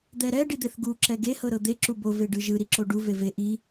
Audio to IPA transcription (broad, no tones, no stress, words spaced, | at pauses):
d̪ɛɾɛ ɖid̪eθɡu ǁɛɡe hɤɾɤd̪e ǁubo veɖɯʒɯ ɾiǁoɖu veve ʔi